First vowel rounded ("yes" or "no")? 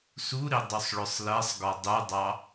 yes